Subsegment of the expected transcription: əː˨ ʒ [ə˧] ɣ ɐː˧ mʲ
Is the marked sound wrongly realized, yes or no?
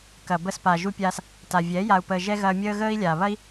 yes